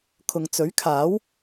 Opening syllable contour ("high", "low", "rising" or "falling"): low